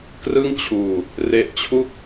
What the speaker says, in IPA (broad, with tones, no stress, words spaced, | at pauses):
krɯ˥˩ŋt͡ɕʰuː˧ | re˦˥ʔt͡ɕʰu˥˩k̚